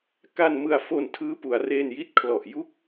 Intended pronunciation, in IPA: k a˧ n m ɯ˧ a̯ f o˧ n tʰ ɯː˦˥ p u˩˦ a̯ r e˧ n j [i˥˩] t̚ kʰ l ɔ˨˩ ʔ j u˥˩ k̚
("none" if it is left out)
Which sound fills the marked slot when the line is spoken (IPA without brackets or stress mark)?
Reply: i˦˥